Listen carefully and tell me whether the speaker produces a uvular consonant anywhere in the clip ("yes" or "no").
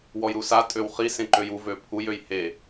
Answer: yes